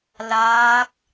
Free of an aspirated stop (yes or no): yes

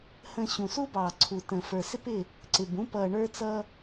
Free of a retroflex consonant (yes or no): no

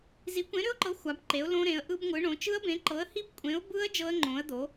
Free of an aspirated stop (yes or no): yes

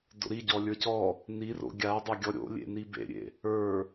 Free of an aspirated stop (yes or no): yes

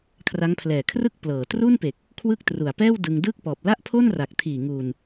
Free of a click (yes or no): yes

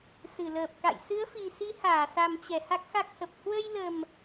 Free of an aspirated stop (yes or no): yes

